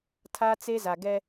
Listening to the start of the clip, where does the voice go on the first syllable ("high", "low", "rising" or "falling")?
high